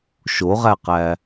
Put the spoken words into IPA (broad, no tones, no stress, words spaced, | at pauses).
ʃoʁæqæ